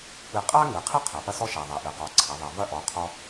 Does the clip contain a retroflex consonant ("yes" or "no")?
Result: no